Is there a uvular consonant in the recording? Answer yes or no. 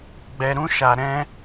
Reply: no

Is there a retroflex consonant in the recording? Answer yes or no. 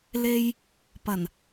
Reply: no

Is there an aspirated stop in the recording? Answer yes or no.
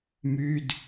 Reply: no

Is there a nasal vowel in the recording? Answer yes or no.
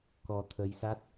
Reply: no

